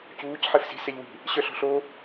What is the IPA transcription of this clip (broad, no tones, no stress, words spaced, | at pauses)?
cuːc ħefsi̤ sɛʎwi̤ | ɕœɬɔ̤ɬo